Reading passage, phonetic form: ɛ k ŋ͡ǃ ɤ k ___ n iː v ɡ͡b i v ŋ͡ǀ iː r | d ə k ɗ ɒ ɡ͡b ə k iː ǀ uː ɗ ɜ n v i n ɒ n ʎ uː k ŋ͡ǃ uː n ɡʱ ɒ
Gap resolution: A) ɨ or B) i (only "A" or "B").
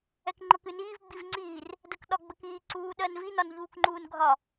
A